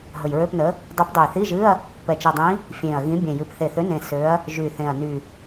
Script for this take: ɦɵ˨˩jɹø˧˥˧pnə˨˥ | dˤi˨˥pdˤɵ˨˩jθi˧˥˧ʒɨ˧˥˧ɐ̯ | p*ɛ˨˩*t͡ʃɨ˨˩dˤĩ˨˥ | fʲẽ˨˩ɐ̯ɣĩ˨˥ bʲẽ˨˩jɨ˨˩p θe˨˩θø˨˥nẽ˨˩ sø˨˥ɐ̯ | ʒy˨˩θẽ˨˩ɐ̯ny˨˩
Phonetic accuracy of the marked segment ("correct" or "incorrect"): correct